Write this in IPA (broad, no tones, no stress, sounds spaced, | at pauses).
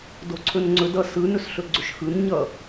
d o ǀʰ ɵ n ŋ͡ǀ ɵ d ʌ s ɯ n ɵ s ɬ ɵ ɡ͡ǀ ɵ ʃ x ɯ n ɲ ʌ